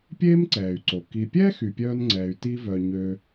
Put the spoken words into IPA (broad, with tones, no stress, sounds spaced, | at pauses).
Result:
pʲ eː˦ m ǀ ɛː˩ y̯ ǀ o˩ k i˨ pʲ ɛ˥ x y˨ pʲ œː˦ n ŋ͡ǀ ɛː˨ y̯ t i˦ v œ˨ ɲ ø˦